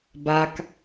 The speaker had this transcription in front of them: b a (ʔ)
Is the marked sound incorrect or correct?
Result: incorrect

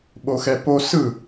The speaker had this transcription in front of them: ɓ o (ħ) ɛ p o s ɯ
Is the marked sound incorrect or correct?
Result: incorrect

